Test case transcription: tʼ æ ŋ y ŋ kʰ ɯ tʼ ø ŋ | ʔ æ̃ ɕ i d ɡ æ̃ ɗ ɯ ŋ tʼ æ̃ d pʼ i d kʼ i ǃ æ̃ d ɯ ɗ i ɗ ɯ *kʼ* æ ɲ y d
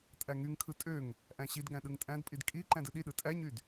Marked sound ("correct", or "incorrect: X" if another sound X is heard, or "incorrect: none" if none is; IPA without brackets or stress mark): incorrect: tʼ